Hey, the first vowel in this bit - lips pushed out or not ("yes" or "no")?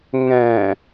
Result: no